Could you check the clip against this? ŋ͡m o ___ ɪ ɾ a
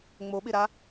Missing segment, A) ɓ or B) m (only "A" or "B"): A